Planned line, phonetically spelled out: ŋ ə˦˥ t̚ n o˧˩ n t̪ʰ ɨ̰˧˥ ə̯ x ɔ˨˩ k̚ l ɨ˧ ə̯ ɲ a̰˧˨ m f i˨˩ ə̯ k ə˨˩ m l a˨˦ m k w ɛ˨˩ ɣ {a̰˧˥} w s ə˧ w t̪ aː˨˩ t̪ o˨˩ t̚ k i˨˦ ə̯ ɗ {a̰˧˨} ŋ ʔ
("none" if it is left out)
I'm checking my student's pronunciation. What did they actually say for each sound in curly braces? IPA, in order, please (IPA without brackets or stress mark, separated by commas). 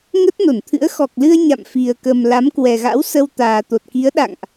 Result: a̰˧˥, a̰˧˨